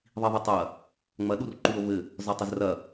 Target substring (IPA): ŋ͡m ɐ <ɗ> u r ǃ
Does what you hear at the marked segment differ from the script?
no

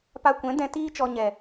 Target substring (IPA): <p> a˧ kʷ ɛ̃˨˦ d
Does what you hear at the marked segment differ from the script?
no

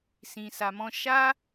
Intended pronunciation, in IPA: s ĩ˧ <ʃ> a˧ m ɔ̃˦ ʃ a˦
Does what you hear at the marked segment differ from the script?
yes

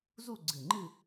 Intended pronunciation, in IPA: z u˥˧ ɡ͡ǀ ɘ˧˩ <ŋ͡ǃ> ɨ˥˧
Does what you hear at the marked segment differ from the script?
no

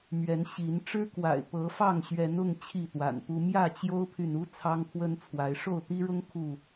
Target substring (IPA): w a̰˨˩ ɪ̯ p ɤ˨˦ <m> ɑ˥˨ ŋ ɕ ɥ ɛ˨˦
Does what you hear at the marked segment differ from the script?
yes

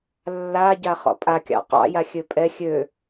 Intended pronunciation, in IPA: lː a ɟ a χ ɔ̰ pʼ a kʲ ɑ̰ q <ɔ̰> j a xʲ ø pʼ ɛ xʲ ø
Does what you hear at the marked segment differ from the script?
yes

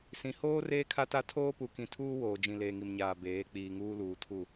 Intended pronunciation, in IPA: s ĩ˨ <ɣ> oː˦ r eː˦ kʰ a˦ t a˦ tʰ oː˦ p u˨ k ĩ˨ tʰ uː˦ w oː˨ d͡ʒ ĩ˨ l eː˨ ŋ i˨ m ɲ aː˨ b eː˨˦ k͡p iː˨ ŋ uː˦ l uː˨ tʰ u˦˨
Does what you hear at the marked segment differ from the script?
yes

